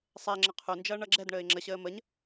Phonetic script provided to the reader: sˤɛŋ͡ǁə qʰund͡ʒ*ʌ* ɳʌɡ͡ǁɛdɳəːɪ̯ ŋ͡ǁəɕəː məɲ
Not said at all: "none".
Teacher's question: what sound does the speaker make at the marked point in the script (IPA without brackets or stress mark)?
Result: ʌː